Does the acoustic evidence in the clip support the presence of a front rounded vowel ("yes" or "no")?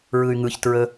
yes